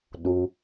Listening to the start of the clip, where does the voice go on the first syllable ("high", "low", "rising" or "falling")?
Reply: low